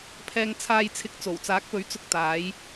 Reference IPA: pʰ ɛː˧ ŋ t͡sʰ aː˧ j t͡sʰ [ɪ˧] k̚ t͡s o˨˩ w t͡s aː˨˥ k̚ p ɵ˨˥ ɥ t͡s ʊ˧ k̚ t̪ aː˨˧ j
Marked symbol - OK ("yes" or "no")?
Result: no